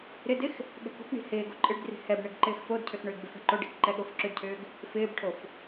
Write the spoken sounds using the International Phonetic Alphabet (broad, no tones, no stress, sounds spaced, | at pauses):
ɾ ɪ d ɪ x | ɠ ɛ̤ k o̤ k ɳ i̤ h ɪː ɡ o ǃʼ ɪ ɖ d r i̤ h ɛ b ɳ ɪ ɡ ǃ ɪː x f o d cʰ ʏ x ɳ ʏː ɡ b ʏ f ɛ̤ ǃ o ɖ i̤ k ǃ ɛ ɠ o f ǁ ʏ d cʰ ʏː ɡ | f ɪː b ʈʰ o f